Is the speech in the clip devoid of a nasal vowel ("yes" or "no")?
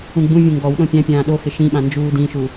no